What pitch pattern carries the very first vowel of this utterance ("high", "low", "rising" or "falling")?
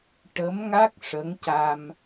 rising